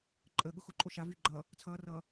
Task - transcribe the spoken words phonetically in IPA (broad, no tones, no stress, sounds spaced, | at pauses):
ǃʼ ə ɠ ʊ x ʊ ǃʼ o ʃ a v yː ɡ͡ǃ ʌ | t͡sʰ ʌː r ʌː